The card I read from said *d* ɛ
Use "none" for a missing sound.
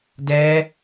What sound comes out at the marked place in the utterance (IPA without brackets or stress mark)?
d